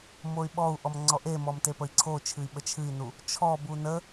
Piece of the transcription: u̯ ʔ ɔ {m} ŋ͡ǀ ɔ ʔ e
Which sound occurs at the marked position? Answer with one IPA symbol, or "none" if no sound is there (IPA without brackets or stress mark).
m